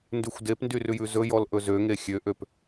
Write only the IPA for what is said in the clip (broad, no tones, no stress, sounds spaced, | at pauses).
n d ʉ xʷ d e p n d y r ʉ j ʉ z ɵ j ɔ l ʔ ɵ z ø ŋ e xʲ ø ʔ ø p